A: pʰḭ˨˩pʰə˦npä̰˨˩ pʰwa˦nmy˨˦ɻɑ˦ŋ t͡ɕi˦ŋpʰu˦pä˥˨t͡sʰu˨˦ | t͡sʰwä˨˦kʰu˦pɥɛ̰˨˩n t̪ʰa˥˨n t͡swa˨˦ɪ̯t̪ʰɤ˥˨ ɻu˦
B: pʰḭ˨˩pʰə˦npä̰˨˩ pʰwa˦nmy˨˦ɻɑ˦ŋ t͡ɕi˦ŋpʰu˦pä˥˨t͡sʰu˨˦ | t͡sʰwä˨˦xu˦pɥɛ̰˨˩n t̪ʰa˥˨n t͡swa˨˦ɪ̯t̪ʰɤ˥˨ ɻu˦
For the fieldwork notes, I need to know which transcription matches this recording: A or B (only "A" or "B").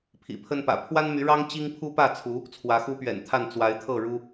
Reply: B